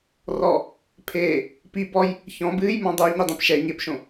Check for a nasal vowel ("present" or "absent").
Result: present